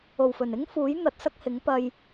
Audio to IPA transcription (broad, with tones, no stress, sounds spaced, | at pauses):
o˨˩ w f ɵ˨˩ n ɪ˥ ŋ f uː˨˥ j n̪ ɐ˨˥ t̚ s ɐ˥ k̚ h ɪ˨˥ ŋ p ɐ˧ j